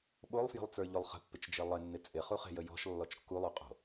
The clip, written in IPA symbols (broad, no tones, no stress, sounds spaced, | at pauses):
ɓ o lˠ f j ə̤ lˠ t͡s ə˞ ʎ o lˠ χ ə̤ pː ɪ t͡ʃ d͡ʒ ɪ lˠ ɪ nː ɪ t͡sʼ ɪ χ u χ e̤ j ə j ɔ̤ ʃ lː ɔ t͡ʃ kː u lˠ o qʼ o̤